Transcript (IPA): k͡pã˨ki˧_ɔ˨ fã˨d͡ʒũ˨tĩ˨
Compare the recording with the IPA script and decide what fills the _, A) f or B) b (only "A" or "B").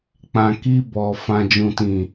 B